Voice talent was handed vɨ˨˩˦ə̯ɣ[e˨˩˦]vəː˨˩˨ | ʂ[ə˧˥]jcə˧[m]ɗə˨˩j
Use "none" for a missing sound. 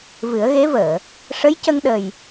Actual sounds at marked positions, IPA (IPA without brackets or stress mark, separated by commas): e˧˥, ə˧˥, ŋ